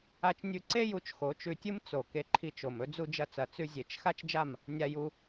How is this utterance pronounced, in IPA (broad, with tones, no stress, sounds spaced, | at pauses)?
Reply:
a˧ t͡ʃ nʲ ʉ˧ ǀ e˦ j u˨˦ t͡ʃ x o˨˦ t͡ʃ ʉ˧ tʲ ɨ˦ m t͡s o˨ k e˧ ǃʰ i˧ t͡ʃ o˨ m ɵ˦ d͡z u˧ d͡ʒ ɐ˧ t͡s ɐ˨ t͡s ʉ˧ zʲ e˨ t͡ʃ x a˦ t͡ʃ d͡ʒ a˦˨ m | nʲ a˧ j u˧